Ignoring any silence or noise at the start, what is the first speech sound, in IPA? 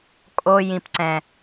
kʼ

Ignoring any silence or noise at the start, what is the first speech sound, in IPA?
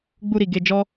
ɡ͡b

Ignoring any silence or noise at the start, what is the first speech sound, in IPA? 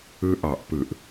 ɯ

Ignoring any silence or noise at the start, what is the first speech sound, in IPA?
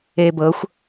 eː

